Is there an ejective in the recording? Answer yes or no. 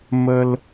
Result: no